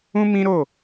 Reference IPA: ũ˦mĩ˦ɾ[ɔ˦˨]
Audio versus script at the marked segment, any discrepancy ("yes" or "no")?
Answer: yes